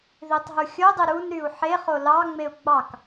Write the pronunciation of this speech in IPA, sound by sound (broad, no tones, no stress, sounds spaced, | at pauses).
ð i tˤ ɦ u xʲ o dˤ i ɾ u n ɾ y u̯ ħ e χ o l ɑ ŋ͡m e u̯ ɡ͡b ɑ k